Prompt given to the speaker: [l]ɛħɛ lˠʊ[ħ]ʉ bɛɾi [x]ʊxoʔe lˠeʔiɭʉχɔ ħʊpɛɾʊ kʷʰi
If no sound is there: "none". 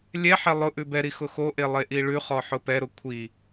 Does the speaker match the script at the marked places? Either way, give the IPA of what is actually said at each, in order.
lʲ, ʔ, x

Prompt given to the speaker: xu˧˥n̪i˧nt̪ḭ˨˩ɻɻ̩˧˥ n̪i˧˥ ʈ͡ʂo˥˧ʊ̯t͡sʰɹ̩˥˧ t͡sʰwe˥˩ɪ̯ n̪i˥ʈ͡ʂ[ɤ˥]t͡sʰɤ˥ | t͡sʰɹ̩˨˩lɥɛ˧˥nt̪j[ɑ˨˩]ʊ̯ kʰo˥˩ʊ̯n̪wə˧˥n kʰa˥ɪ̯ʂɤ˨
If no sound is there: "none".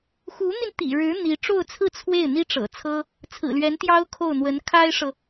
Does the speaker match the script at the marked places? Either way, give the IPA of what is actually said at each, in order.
ɤ̰˨˩, ɑ˥

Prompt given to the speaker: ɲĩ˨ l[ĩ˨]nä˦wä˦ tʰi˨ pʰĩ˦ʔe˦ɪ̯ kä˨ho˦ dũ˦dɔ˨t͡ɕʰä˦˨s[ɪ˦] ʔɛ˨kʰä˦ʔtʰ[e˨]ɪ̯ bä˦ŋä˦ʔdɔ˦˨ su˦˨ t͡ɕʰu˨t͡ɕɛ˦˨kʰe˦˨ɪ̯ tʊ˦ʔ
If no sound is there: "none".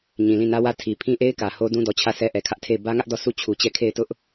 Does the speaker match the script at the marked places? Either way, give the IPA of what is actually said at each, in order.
ĩ˦˨, ɛ˦, e˦˨

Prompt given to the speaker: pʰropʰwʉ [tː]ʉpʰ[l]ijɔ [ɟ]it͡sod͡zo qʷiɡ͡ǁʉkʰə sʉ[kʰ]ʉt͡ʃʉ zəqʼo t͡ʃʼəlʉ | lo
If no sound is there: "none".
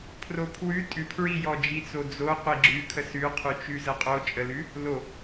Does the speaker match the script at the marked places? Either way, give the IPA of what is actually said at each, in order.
tʼ, ɹ, d͡ʒ, qʰ

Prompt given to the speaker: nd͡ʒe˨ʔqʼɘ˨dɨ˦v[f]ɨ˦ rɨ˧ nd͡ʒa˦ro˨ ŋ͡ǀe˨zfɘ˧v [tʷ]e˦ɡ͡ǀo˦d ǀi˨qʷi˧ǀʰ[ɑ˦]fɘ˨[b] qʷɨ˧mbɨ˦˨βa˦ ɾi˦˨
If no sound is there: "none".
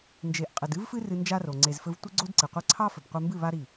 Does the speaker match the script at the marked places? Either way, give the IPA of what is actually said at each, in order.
f, tʷ, ɑ˦, b

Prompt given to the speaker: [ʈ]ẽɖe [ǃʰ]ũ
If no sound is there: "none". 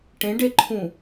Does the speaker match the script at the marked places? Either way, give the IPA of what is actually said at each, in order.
ʈ, ǃʰ

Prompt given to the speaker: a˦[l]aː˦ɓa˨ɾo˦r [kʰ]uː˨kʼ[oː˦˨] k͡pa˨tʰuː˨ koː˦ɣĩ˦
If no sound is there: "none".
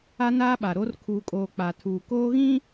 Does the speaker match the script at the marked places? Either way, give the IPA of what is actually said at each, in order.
n, kʰ, oː˨

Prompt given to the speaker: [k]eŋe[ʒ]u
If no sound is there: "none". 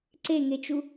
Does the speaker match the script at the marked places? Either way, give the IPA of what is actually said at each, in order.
ǀ, t͡ʃ

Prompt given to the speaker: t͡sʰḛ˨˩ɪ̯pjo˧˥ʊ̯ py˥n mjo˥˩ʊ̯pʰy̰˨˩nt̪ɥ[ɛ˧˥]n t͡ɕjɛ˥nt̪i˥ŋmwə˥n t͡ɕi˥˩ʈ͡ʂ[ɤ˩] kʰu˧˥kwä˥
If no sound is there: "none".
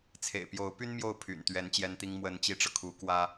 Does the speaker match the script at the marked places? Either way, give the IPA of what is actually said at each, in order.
ɛ˧˥, ɤ˩

